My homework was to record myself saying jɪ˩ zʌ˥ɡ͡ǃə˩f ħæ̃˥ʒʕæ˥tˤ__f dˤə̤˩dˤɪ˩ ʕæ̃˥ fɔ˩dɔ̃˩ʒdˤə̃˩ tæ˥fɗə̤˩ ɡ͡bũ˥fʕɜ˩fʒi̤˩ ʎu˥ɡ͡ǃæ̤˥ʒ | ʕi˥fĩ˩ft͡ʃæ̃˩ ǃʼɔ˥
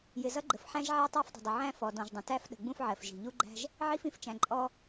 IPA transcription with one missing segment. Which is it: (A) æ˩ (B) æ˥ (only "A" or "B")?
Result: B